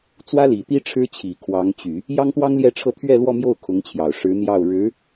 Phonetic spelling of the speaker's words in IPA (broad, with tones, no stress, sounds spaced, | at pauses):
t͡s w ä˥ l i˨˩ t̪ i˥ ʈ͡ʂʰ ɻ̩˥ t͡ɕʰ i˨˩ kʰ w ɑ˧˥ ŋ t͡ɕ y˨˩˦ | j ɑ˥ ŋ t̪ w ɑ˥ ŋ l j ɛ˥˧ ʈ͡ʂʰ ɤ˥˧ t̪ʰ ɥ ɛ˥˧ l w ɔ˥˧ m j o˥˩ ʊ̯ kʰ ʊ˧˥ ŋ t͡ɕʰ j ɑ˨˩ ʊ̯ ʂ ɻ̩˧˥ n̪ j ɑ˥˩ ʊ̯ ɻ ɻ̩˧˥